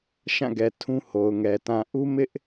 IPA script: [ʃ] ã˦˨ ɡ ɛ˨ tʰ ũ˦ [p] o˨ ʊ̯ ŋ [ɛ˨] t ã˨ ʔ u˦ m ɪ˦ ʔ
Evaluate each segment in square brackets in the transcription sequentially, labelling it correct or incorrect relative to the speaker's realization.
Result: correct, incorrect, correct

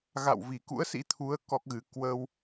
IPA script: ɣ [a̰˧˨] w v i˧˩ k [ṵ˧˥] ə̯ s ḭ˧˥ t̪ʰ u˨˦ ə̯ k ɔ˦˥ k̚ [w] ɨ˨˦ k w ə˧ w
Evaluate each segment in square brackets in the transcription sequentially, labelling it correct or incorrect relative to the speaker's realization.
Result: correct, correct, incorrect

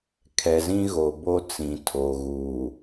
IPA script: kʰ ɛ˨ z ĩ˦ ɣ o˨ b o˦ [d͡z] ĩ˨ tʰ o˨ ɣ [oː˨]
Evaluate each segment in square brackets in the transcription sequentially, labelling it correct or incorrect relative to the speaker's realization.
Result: incorrect, incorrect

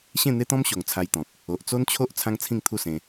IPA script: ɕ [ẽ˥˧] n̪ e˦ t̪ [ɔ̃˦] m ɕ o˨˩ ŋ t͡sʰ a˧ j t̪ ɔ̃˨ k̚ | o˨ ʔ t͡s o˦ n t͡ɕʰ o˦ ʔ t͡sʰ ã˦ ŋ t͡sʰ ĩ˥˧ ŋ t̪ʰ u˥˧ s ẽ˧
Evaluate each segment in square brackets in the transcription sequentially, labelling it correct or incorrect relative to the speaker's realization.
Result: correct, correct

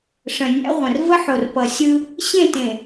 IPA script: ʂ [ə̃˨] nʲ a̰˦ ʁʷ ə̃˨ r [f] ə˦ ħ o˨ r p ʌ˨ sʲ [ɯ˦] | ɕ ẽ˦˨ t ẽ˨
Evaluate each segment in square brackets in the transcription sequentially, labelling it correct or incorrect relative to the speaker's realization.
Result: correct, incorrect, correct

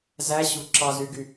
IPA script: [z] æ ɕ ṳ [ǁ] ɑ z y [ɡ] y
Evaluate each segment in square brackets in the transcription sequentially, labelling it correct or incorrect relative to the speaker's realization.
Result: correct, correct, correct

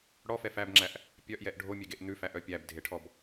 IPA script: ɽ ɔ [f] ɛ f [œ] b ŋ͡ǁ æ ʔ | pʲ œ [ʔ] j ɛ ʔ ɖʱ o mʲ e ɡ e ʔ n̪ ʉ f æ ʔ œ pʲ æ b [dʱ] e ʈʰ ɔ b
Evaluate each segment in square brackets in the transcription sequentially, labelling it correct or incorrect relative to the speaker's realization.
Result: correct, incorrect, correct, correct

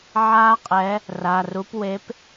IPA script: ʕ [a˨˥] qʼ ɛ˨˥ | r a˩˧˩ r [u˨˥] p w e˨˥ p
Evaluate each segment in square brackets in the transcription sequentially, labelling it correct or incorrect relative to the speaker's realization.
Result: incorrect, correct

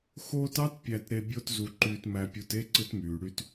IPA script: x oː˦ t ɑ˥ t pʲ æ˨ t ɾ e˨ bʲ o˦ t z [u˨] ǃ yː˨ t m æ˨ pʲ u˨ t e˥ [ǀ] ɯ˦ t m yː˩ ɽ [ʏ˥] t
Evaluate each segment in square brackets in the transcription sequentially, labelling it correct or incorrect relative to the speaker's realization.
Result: correct, correct, incorrect

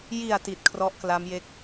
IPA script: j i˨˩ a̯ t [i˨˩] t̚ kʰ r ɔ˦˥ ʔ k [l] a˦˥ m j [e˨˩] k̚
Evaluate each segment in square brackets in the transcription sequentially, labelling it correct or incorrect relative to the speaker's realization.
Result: correct, correct, incorrect

